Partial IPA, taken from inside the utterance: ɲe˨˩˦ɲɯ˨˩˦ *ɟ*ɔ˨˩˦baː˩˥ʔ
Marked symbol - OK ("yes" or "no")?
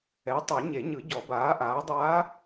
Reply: yes